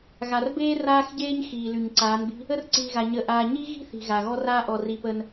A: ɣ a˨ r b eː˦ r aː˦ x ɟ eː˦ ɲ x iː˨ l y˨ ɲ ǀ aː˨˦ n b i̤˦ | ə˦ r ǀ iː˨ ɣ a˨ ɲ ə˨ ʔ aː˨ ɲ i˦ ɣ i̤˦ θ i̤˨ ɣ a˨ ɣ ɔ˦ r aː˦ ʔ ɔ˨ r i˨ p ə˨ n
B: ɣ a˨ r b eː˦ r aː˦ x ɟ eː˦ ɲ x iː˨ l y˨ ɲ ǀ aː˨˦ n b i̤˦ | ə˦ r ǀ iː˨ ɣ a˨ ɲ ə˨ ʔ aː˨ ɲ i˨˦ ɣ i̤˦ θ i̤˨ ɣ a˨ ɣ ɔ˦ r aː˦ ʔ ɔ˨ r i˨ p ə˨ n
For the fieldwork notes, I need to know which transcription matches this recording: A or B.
A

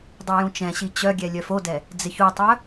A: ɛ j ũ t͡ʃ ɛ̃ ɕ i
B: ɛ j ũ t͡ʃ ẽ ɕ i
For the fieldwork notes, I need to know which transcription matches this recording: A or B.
A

